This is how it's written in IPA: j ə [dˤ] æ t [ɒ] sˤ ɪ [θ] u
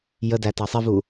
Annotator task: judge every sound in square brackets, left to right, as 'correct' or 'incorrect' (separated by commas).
incorrect, incorrect, incorrect